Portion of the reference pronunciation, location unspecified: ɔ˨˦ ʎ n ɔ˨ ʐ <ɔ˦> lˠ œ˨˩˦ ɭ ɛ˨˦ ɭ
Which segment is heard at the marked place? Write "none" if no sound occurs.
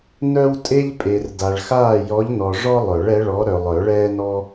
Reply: ɔ˦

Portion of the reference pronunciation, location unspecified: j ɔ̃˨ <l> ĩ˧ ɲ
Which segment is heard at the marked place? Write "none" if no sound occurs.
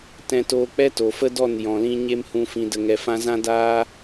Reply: l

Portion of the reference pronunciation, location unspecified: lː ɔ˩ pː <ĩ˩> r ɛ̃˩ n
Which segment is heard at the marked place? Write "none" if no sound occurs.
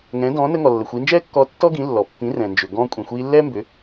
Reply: ĩ˩˥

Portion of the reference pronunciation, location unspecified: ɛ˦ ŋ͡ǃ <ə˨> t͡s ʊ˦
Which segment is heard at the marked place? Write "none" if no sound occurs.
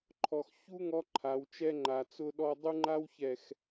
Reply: a˨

